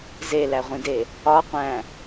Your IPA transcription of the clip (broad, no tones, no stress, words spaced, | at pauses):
zelæʁʷĩde | ɒqʷæ̃